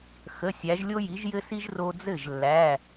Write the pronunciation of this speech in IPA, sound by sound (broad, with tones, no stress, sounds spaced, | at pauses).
x ə˩˧˩ sʲ æ˩˧ ʒ lʲ o˧ j i˩˧ ʒ j ɘ˧ s i˧ ʒ r o˧ d͡z ɘ˥˩ ʒ lː æ˩˧˩